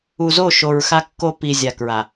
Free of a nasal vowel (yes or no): yes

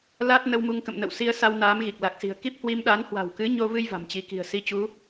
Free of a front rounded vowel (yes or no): yes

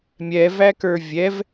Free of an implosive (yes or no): yes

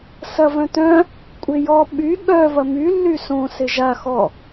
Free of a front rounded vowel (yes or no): no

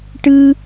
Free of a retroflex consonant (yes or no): no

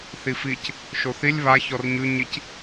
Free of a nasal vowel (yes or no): yes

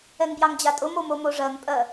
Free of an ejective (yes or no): no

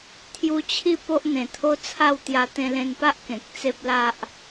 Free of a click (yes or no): yes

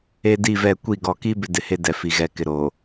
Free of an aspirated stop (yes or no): yes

